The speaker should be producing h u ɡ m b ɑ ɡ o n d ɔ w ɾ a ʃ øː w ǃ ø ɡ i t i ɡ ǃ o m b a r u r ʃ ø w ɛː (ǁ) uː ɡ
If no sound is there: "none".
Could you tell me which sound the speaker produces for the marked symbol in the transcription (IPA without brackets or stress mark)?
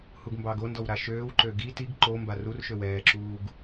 ǁ